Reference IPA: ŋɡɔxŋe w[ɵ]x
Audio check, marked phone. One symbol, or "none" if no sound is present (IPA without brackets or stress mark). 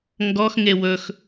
ɵ